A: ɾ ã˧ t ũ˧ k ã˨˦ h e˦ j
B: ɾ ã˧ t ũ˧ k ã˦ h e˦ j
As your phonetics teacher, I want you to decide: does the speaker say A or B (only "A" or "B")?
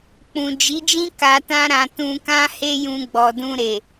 B